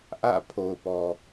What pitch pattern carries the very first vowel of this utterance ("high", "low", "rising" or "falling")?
falling